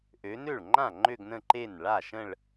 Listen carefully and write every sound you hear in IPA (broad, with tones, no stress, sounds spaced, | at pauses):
ʔ ø˨˦ n ø˥˩ ɭ ŋ͡ǃ ã˥˩ ŋ͡ǃ ø˥˧ ɡ n ə̃˥˧ ǃ e˥˩ n ɭ a˥˩ ʃ ə̃˥˧ ɭ